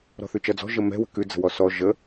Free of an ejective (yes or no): yes